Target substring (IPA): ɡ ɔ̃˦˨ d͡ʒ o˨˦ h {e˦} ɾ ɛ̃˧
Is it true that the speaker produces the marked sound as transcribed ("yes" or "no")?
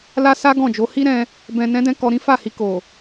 no